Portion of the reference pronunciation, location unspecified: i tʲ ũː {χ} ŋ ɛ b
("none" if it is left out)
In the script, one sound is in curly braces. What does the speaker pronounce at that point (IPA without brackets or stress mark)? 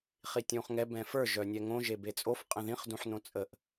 χ